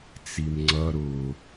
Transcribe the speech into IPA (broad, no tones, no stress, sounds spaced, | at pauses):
t͡s i m ŋ͡ǀ ʌ ɾ ʊ